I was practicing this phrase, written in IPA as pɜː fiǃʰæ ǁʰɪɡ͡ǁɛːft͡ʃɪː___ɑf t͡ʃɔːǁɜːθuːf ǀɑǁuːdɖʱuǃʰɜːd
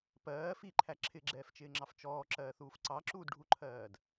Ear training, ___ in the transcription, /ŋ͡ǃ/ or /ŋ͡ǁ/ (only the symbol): ŋ͡ǁ